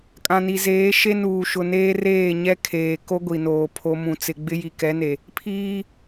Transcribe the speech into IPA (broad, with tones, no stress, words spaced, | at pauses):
kʼã˨ni˨zeː˨˦ ʃe˦nuː˨ ʃʊ˨neː˦ reː˦˨ɲɛ˦kʰeː˨ ko˦ɡʷi˨noː˨ pʰo˦mũ˦t͡sɪ˦ ɡ͡bɪ˦ji˨kɛ˨˦ne˨ | pʰiː˦